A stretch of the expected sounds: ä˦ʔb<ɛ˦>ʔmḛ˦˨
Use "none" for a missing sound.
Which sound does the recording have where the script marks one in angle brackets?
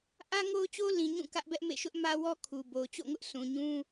ɛ˦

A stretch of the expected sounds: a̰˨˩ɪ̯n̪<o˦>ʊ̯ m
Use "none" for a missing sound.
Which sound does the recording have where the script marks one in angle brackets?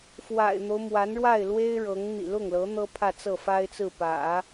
o˦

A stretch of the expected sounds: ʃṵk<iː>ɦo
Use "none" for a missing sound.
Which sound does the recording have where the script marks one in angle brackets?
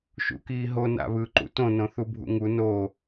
iː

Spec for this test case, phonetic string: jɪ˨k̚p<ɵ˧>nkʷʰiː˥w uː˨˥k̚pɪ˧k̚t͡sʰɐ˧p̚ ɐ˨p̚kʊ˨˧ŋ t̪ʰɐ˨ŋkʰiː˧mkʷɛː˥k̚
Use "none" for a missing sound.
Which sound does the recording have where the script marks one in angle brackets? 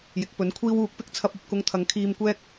ɵ˨˥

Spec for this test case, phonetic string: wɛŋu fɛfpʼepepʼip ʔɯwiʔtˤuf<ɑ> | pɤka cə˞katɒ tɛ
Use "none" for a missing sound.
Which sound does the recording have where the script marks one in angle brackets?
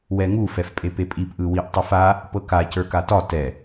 a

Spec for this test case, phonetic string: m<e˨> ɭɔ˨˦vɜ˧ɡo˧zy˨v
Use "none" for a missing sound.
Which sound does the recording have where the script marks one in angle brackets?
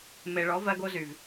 e˨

